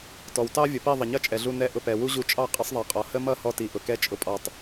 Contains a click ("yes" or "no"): no